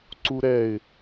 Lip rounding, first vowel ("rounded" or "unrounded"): rounded